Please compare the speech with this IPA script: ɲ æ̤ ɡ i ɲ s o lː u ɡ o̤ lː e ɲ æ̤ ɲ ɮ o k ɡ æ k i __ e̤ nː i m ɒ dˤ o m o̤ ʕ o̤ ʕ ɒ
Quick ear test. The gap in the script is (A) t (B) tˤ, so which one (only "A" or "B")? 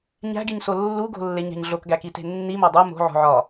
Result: A